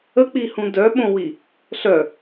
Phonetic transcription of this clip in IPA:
ə k͡p i h ũ d œ ɓ õ w i | ɬ œ

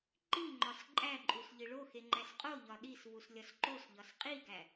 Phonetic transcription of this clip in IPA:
ǃ i ŋ͡ǃ ɒ s ǃʼ æ ǃʼ u s ʎ i ɭ o x e ŋ͡ǃ æ s qʼ o ʎ ɒ ɗ i s v u s lʲ ɒ s ǃ o s ʎ ɒ s qʼ i ɡ æ

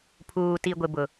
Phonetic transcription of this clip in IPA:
pʰ uː˨ t i˨ ɡʷ ɪ˨ b ʊ˨

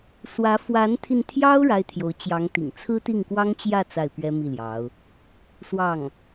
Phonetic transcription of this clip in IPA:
s w ä˧˥ f w a˧˥ n t̪ʰ i˧ n t̪ʰ j ɑ˥ ʊ̯ ɻ a˥ ɪ̯ t̪ʰ j o˧˥ ʊ̯ t͡ɕ j ɑ˧˥ ŋ t̪ ḭ˨˩ ŋ t͡sʰ ɹ̩˥ t̪ i˥˩ ŋ k w ɑ˥ ŋ t͡ɕ j ä˥˧ t͡s a˥˩ ɪ̯ p ɥ ɛ˥ m i˥˩ l j ɑ˧˥ ʊ̯ | s w ɑ˥˩ ŋ

